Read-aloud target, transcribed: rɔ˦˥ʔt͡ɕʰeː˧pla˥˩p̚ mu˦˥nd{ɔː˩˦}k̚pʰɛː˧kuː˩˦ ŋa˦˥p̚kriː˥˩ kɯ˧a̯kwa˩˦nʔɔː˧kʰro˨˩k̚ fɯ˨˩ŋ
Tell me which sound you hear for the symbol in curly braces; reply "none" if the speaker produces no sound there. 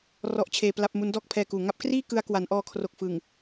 ɔː˥˩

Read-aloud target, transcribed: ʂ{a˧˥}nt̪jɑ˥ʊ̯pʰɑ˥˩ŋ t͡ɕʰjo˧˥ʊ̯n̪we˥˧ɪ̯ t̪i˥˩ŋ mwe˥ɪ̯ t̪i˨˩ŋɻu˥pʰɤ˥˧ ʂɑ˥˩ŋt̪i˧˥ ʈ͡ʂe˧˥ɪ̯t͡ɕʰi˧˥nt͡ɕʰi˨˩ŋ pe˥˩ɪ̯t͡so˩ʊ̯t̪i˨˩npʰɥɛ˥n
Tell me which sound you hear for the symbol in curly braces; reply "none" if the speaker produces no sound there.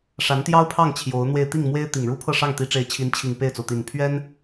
a˧˥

